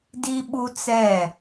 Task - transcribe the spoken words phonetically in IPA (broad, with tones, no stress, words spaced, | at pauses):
di˦ɓu˦t͡sɛ˦˨